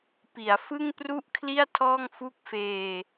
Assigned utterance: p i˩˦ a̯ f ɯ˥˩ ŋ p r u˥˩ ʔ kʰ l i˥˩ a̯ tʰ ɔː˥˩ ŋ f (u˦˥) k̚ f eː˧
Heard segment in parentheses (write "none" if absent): u˦˥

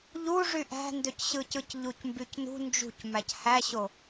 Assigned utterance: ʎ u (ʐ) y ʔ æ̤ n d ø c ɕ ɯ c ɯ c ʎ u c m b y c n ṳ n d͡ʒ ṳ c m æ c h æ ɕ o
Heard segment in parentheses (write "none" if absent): ʐ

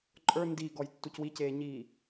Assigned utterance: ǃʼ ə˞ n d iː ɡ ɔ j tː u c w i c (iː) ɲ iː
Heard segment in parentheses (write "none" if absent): eː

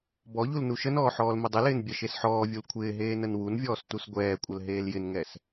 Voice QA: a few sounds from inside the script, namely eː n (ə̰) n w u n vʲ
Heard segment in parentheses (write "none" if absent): ə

